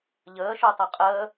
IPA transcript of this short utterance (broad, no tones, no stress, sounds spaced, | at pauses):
ʎ əː ʃ u tˤ ʌ qʼ əː